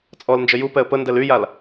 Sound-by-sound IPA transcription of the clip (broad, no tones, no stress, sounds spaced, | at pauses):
t͡sʼ ɔ l n d͡ʒ ə j u p ɛ ə̯ p ə n d ɛ l y j a l